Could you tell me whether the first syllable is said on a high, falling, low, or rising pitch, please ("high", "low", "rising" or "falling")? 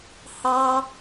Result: high